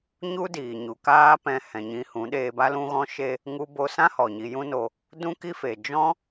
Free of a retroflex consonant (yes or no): yes